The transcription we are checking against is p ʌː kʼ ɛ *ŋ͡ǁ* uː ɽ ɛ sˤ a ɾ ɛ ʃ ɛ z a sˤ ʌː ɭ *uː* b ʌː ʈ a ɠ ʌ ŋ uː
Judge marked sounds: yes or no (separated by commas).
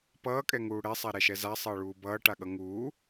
no, yes